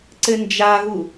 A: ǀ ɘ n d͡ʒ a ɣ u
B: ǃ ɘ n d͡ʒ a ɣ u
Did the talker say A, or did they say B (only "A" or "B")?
A